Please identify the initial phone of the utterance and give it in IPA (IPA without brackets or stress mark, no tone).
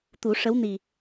t̪